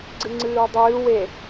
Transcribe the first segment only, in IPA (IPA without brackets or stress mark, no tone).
ɡ͡ǀ